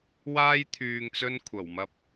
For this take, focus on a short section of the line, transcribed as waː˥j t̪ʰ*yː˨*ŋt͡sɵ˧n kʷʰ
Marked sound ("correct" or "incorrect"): correct